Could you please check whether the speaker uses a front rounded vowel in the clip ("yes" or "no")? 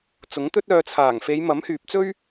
yes